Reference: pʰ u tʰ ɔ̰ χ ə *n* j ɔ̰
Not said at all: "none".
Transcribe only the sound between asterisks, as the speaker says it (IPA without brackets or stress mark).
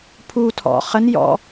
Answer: n